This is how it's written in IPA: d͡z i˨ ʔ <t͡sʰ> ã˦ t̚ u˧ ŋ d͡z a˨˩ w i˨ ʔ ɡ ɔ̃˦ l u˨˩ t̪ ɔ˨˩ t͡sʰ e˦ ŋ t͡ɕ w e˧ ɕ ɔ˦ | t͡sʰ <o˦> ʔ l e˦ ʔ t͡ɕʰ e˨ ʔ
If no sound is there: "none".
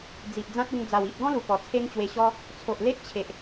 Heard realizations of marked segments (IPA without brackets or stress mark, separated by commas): d͡z, o˨